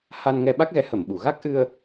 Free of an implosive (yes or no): no